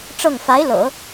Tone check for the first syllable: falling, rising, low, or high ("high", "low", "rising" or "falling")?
falling